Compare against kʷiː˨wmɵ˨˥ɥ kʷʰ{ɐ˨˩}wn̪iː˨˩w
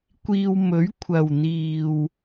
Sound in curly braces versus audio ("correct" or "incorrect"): correct